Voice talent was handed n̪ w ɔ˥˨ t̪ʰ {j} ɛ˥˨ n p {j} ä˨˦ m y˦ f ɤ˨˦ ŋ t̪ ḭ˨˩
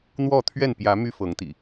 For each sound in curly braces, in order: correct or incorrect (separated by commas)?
incorrect, correct